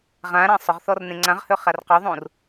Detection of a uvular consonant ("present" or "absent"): present